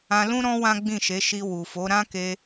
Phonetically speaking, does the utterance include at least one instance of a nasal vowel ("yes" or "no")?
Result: yes